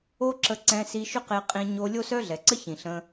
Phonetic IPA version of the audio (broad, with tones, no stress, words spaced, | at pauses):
o˦ǁə˧ ǀɛ̃˧si˧ʃʏ˦ qe˧qʼĩ˧ ɲo˧lʲo˦sœ˦ ɮɛ˨ǀə˦çĩ˨ ɬə̃˧